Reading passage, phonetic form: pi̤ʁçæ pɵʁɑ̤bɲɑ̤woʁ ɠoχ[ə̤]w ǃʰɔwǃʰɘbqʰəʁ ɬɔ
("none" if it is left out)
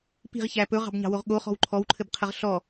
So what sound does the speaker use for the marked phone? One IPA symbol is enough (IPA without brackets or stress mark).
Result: ɔ̤